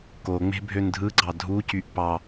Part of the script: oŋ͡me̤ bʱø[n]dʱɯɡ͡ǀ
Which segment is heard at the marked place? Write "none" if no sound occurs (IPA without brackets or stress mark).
n